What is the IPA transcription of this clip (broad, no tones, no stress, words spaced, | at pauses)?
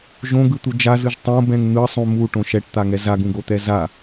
ʒõɡɯt̪u d͡ʒazɯʒ tˤõbɛ̃ŋ n̪ɯsˤũ muʈõ ʃɛʈt̪aŋɛ zaɡũɡot̪ɛ za